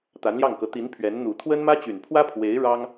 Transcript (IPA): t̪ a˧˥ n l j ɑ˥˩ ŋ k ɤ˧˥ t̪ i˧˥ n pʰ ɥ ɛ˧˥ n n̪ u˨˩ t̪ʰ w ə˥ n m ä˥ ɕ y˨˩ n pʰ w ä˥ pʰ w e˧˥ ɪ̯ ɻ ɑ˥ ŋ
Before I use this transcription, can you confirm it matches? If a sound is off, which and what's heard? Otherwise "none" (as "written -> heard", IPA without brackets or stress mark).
ɕ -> t͡ɕ